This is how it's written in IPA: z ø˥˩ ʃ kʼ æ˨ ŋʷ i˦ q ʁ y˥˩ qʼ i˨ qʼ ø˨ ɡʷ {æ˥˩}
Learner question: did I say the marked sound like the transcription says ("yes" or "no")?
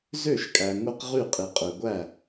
yes